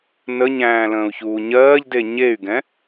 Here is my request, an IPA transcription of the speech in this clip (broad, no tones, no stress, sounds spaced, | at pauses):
n ə ɲ æ̃ː l ə̃ː u̯ ç uː ɲ ɜː ʎ d e ɲ e y̯ ɡ ɛ̃